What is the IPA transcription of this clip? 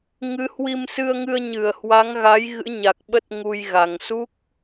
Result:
ŋɨ˨˦hwi˧msɨ˧ə̯ŋɨ˧ə̯ ɲɨ˧˩ə̯hwa˨˦ŋɣa˨˦j ɣɨ̰˧˥ɲa˨˩k̚ɓə˦˥t̚ ŋu˧jɣa˨˩ŋ su˦˥k̚

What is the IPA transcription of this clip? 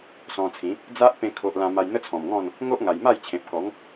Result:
sɔ̃˧t͡sʰĩ˨˦ | d͡za˦ʔpẽ˧ kʰo˨ʔ lã˧ma˧j n̪ə˦t͡sʰɔ̃˨˩mŋɔ̃˥˧n | ŋo˦ʔŋa˨˩jma˥˧jt͡ɕʰẽ˨p̚ kɔ˨˦ŋ

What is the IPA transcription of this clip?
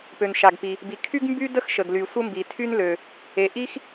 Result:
pø˩nʃa˩ɡpi˩ | bi˩ kʰy˥ɡ mby˥də˥x ʃə˩ɡly˩ sʷə˥mbi˩tʰy˥nlø˩ | e˩ʔi˥x

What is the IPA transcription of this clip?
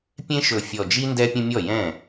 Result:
pʲẽ˦ʃɵ˨˩fʲɔ˨˩d͡ʒi˦ ndɛ˦pʲə̃˦mʲɔ˥˩jɛ̃˥˩

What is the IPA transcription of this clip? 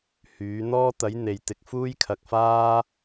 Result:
hyː˨˥ n̪ɔː˥t̪ɐ˨˥j n̪e˨jt̪ɪ˧k̚ fuː˥jkʰɐ˨k̚faː˥

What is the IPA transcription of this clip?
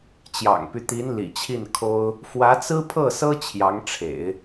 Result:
t͡ɕjɑ̰˨˩ŋpy˦t̪i˧˥n lḭ˨˩t͡ɕʰi˥˩nkʰo˥ʊ̯ | fwä˧˥t͡sɹ̩˥pʰɤ˥˩sɤ˥ t͡ɕʰjɑ˧˥ŋʈ͡ʂʰḛ˨˩˦ɪ̯

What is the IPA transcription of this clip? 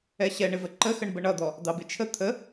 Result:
ɛɕɛɳɪvə ǃəxəɳbə ɳʌd̪ɔ | d̪ɑbɪt͡ʃʰə t̪ʰə

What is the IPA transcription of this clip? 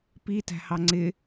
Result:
pitæ̤hɑ ŋ͡ǀɪ

